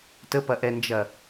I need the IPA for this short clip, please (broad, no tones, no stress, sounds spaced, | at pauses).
t ə p ɐ ʔ ɛ n d͡ʒ ɐ